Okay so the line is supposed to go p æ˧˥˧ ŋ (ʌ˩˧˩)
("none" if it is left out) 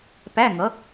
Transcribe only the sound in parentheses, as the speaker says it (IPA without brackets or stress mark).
ʌ˩˥